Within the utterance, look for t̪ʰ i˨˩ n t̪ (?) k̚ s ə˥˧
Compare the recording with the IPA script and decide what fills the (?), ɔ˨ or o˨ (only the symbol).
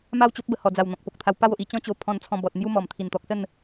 ɔ˨